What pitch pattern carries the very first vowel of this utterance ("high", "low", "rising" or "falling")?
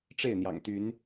falling